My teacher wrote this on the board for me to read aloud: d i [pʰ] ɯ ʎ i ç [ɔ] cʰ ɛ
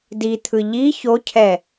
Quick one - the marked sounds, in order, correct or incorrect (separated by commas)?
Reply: incorrect, incorrect